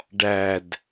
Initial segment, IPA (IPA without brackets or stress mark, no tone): ɖ